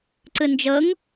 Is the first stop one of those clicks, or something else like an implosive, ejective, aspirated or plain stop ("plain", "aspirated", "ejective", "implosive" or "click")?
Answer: click